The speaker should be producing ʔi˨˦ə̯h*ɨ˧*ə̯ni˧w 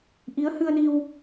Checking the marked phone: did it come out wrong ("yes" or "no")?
no